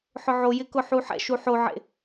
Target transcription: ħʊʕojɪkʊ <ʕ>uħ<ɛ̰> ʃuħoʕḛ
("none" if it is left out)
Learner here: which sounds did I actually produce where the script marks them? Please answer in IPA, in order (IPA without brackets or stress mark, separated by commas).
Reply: ħ, ɛ̰